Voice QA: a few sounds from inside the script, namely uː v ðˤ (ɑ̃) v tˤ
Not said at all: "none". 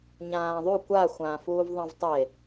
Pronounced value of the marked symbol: ɑ̃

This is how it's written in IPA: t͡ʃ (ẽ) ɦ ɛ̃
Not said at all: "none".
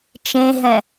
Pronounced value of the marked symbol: ẽ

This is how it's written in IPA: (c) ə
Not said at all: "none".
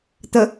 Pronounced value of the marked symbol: t̪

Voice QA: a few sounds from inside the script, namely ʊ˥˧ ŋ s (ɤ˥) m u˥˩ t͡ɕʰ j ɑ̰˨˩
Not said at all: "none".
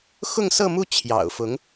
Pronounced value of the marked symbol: ɤ˥˧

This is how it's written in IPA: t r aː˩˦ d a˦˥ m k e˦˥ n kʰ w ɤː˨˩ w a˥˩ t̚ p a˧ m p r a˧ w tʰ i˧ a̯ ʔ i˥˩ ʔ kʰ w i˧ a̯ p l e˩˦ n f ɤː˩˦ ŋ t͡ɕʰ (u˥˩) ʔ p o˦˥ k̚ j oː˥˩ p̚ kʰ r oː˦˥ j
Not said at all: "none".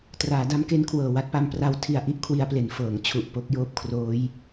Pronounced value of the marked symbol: u˨˩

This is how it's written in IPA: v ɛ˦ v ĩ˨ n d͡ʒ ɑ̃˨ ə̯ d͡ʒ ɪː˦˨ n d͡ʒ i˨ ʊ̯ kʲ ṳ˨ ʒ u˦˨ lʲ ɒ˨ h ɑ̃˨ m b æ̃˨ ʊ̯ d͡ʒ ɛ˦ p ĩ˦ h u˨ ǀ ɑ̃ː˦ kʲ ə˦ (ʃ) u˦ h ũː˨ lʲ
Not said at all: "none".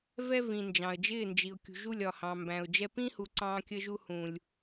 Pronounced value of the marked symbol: ʒ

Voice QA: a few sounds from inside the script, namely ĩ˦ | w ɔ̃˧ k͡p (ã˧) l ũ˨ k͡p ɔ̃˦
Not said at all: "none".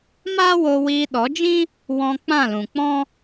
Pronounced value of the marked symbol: ã˦˨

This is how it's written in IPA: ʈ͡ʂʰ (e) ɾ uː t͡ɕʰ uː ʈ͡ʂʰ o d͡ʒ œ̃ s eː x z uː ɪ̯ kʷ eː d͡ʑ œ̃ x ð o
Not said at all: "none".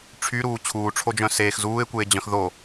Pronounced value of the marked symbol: y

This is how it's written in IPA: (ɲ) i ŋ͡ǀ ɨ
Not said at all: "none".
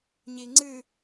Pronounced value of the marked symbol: ɲ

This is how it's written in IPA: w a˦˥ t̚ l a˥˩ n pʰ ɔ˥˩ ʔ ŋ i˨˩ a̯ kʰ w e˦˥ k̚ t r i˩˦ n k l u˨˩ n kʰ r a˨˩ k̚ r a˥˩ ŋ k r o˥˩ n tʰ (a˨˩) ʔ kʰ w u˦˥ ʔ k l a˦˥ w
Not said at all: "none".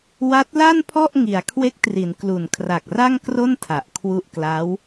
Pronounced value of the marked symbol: a˨˩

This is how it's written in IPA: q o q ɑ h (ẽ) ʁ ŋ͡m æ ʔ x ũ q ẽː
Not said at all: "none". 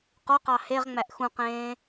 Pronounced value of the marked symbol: e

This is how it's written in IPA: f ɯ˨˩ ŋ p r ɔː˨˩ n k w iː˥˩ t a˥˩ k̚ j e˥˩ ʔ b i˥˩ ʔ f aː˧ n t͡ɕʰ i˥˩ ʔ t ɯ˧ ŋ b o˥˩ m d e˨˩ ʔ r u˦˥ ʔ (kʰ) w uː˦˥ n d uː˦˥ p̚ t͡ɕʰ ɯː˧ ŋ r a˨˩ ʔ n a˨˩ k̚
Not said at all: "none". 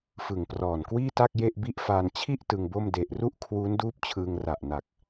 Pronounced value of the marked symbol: kʰ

